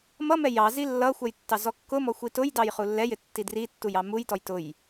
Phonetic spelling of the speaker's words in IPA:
mʌmɛ jɑ zilːʌxʷɛj tːɑzɔkːʊmɔ xʷitʊjdɑj χulːɛjɪ tːidritːuj ɑmujtɔj tʊj

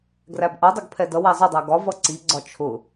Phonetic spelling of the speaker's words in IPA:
ɡræbʔʌdˤʊɡ pʰɛdʌwæ zˤɪdˤæ ɡɒ vʌǀiɡ͡ǀɒ t͡ʃʰʊ

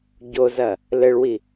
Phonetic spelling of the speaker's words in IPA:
ɟozɐ | lɘɭwi

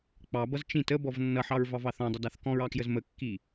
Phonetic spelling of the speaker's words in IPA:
k͡pɑbʌz t͡ʃĩt əbɔv nːʌħɑɹvɑvɑ θɔ̃dˤʌdɑθ kɔ̃ɹɑkjəz məkːi

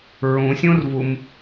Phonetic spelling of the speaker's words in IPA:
ɹũsʲũrvum

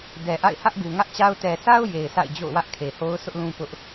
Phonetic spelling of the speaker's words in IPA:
dɛ˨ ʔa̰˦˨ɪ̯ hä˦ʔɡu˨ŋä˦ʔt͡ɕa˦ʊ̯ tɛ˨sʰa˦ʊ̯ je˨ɪ̯sʰa̰˦˨ɪ̯d͡ʑo̰˦˨ʊ̯ wä˦ʔkʰe˨ho˦ʊ̯sʰʊ˦ʔ lũ˦pʊ˦ʔ

